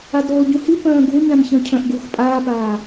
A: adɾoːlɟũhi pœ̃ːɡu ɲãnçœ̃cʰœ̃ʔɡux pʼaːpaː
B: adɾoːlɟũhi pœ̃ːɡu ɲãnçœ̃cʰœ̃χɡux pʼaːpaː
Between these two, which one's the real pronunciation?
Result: A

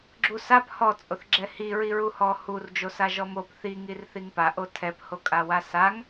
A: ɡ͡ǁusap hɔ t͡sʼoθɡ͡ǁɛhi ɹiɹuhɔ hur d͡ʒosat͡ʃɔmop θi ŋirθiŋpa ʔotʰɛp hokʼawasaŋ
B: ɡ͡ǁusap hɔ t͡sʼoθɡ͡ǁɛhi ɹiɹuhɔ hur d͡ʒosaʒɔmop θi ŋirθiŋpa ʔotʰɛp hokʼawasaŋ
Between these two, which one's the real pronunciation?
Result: B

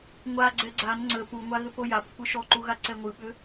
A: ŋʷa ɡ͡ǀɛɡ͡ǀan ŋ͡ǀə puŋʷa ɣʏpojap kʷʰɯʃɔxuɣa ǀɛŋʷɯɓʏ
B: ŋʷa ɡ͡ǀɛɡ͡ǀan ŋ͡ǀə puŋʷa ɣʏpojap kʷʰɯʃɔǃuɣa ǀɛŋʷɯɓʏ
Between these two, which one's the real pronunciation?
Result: B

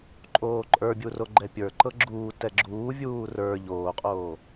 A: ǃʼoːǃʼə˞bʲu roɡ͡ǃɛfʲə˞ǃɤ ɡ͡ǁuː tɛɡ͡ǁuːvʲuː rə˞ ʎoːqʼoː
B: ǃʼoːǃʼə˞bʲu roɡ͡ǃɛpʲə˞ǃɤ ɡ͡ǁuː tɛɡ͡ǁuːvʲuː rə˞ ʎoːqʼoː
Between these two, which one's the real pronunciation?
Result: B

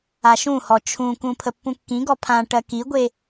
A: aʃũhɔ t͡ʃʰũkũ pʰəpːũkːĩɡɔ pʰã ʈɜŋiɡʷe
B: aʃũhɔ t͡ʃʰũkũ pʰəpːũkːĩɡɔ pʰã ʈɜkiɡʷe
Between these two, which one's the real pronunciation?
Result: B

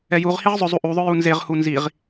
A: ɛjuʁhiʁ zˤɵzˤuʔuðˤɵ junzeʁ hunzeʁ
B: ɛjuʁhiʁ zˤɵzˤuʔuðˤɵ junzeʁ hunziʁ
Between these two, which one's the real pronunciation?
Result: B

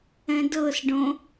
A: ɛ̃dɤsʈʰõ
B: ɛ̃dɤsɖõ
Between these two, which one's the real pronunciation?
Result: B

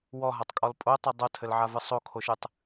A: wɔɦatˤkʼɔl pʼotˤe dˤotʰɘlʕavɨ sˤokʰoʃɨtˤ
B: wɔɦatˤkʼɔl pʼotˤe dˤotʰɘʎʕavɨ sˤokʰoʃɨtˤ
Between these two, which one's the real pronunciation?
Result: A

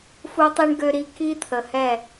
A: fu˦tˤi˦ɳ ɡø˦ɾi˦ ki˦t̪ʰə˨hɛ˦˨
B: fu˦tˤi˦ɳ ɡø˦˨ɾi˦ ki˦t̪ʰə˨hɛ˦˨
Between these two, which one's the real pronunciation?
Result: A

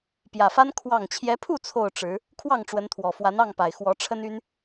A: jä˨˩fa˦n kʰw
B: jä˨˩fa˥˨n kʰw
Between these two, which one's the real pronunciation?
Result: A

